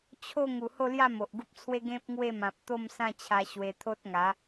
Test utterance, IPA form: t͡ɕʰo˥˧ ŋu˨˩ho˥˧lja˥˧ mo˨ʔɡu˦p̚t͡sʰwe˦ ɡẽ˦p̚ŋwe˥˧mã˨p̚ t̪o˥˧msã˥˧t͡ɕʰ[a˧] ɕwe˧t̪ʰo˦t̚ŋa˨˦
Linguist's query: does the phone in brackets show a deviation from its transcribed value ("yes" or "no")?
no